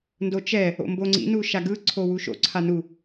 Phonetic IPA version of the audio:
n d o t͡ʃ ɛ | o̰ m b o ŋ͡ǀ ḭ n u ʃ a ɡ ɯ ǀʰ o w u ʃ o̰ ǀʰ a n u

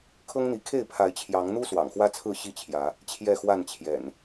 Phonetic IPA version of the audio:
kʰ ɤ˦ ŋ n̪ i˨˦ kʰ e˥˨ ɪ̯ pʰ a˨˦ ɪ̯ t͡ɕʰ j ɑ˨˦ ŋ n̪ u˦ s w ɑ̰˨˩ ŋ x w ä˦ t͡sʰ ɹ̩˥˨ ɕ i˥˨ t͡ɕʰ j ä˨˦ | t͡ɕʰ j ɛ˥˨ x w a˥˨ n t͡ɕʰ j ɛ̰˨˩ n

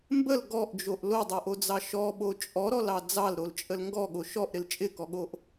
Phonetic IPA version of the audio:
m b ə l ɡ ɔ ʔ d͡ʒ o ʔ l o dˤ o ʔ o d͡z ɑ ʃ ɔ ɓ o t͡ʃʼ ɔ ɾ ɔ l ɑ d͡z ɑ l ɾ o l t͡ʃʼ ə l ŋ ɡ ɔ ɠ o ʃ ɔ ʔ ɾ ɪ l t͡ʃʼ ɪ k ɔ ɠ o ʔ

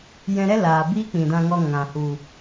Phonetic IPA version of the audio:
j ɛ̃˧ ɾ ɛ˦ l aː˨ b iː˦ k͡p ĩ˨ d ã˧ ŋ ɔ˧ ŋ ã˨ h u˨

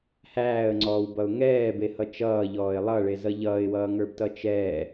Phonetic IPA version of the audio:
h æː ə̯ ŋ͡ǀ ɔː w b ʌ ʊ̯ ŋ ɛː b e h ʌ t͡ʃ ʌː ʎ ɔː ɪ̯ lˠ ʌ ɭ e z ʌ ʎ ʌː ɪ̯ w ʌː ŋ ə˞ b t ʌ t͡ʃ ɛː

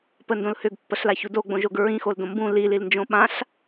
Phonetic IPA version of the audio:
p ə n d õ l h ʏ ɡ pː ə ɬ l a ç u d o ɡ͡b õ ʒ o ɡ ɹ ĩ x o l d õ m b ũ l i l i l n d͡ʒ õ ɓ ã ɬ

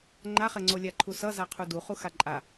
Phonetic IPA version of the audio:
ŋ͡ǃ a χ ɛ ŋ͡ǀ o lʲ a ǃʰ u s ʌ z a qʰ u d u χ u x a ǃʼ a

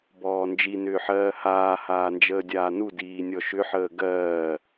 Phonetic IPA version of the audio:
b ɔː n d͡ʒ i n ʏː ħ ɜː h aː h aː n d͡ʒ əː dʲ aː n u d iː nʲ ɔ ʃ ʏ ħ əː ɡ ɜː

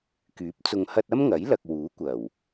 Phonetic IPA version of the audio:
k yː˨˥ p̚ t͡s ʊ˨ ŋ h ɐ˧ t̚ ɐ˥ m ŋ ɐ˨˥ j l ɐ˨ k̚ w uː˨˥ kʷ ɐ˨˩ w

